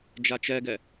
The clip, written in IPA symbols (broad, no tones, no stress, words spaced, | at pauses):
d͡ʒat͡ʃɛɡɛ